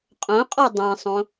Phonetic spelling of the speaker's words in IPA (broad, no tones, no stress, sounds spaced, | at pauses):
qʼ õ qʼ ɔ dˤ ĩ sˤ õ